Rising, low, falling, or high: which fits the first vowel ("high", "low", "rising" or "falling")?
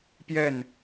falling